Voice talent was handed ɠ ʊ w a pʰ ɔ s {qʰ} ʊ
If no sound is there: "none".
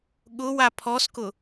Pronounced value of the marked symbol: k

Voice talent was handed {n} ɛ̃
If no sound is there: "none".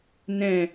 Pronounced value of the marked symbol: n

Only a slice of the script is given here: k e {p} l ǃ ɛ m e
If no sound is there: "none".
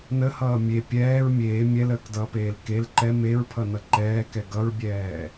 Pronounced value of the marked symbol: none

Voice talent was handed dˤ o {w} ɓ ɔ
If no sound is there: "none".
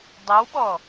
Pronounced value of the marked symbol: w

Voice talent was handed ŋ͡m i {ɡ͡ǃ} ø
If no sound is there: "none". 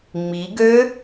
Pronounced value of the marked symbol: ɡ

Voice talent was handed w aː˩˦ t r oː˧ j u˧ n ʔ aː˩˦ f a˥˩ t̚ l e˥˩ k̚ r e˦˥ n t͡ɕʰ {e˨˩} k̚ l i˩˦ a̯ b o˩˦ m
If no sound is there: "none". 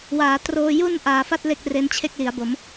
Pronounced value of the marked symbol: e˥˩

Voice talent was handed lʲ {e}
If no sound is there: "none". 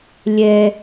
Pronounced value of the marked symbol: ɛ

